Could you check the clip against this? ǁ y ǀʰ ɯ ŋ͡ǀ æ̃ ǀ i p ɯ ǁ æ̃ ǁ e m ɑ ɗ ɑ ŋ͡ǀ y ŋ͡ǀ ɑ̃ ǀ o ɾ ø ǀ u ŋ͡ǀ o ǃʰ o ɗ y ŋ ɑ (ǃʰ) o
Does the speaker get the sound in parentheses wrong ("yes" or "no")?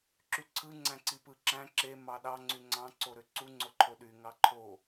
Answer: no